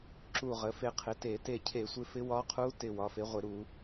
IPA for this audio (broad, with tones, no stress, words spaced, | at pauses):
ǁu˧˩ ʁə˩˥fe˧qʰɪ˩˥te˧˩˧ te˧˩cʰe˧˩˧sʷɪ˧ fɪ˧˥wɒ˧˥qʰu˧˥tɪ˧˩ wɒ˩˥fe˩˥ʁʷɪ˧˩˧ɾu˧˩˧